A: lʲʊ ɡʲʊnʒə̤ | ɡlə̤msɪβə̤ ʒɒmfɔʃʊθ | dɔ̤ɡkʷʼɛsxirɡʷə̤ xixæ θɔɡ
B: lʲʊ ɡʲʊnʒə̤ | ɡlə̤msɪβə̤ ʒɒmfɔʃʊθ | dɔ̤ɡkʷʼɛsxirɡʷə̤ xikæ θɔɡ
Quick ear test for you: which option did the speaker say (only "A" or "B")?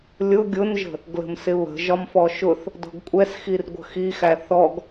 A